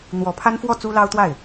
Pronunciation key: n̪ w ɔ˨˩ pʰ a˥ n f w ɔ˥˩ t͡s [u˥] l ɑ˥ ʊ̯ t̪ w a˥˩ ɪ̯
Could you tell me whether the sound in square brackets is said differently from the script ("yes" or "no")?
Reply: no